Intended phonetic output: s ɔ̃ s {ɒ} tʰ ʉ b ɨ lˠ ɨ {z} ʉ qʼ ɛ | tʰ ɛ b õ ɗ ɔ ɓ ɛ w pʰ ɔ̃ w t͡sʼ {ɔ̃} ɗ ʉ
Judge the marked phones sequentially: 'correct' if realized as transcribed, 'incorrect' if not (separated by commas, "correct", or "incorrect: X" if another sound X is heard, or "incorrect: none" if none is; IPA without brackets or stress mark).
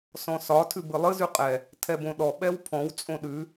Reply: correct, correct, incorrect: õ